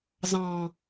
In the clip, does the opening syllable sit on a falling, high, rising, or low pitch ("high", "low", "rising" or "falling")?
high